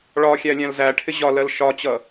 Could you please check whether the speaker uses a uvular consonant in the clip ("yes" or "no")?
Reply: no